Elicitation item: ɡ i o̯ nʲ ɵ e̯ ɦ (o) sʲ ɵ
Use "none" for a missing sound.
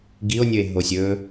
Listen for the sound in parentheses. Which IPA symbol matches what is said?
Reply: o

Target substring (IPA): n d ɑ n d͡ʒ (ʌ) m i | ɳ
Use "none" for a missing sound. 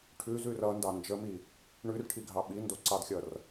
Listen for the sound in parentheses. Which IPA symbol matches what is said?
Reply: ə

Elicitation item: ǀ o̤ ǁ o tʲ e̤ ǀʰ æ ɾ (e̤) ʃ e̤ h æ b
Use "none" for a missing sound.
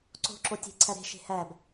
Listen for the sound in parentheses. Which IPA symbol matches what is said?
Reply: e̤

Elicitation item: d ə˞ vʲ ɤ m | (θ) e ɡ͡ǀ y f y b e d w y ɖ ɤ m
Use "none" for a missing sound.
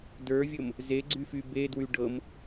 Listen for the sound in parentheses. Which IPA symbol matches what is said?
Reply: z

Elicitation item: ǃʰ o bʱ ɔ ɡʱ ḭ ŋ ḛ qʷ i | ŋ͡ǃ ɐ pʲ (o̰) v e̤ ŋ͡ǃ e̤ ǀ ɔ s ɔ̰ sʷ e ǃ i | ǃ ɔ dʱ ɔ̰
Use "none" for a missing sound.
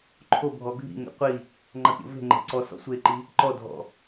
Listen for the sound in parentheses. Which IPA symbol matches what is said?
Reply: o̰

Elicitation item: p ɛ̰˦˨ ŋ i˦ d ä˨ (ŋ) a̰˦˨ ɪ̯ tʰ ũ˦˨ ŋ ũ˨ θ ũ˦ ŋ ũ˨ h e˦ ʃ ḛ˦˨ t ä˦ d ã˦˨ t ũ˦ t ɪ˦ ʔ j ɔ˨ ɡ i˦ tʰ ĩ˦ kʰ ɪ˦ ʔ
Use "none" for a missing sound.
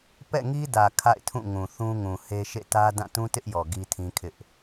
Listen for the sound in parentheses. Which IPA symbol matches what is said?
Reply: kʰ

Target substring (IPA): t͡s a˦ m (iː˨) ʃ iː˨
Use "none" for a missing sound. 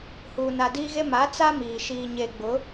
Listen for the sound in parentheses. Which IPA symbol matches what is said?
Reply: iː˨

